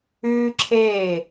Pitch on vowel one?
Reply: high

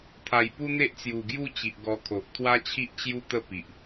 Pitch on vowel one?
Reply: low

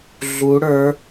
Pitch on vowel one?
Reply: rising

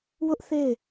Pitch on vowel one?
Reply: high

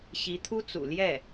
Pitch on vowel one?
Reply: rising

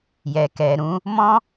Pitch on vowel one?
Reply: low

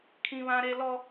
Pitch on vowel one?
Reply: high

